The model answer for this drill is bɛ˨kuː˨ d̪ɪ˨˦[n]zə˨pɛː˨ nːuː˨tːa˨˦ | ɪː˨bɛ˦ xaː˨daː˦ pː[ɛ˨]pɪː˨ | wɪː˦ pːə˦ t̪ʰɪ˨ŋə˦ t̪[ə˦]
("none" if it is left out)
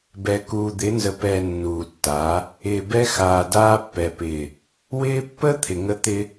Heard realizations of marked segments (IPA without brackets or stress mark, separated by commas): n, ɛ˨, ɪ˦